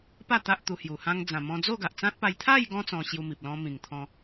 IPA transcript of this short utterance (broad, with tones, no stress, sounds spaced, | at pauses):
p a˥˧ t̪ a˦ ʔ t̪ u˧ h j u˨˩ h ã˧ ŋ d͡z ã˨˩ m ɔ̃˧ d͡z o˥˧ ɡ a˨ ʔ t͡s ã˦ t̚ p a˧ j t̪ʰ a˥˧ j ɡ ɔ̃˧ t͡s ɔ̃˧ ɕ j u˧ m i˨ p̚ l ɔ̃˦ m ĩ˨˩ ŋ t̪ʰ ɔ̃˧